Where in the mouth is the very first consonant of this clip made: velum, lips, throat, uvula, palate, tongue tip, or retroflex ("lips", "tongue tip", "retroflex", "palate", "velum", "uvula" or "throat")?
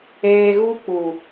velum